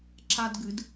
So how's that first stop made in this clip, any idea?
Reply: click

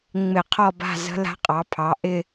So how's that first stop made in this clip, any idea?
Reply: aspirated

